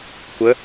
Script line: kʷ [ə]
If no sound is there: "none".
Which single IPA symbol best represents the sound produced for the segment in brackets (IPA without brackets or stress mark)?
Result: ə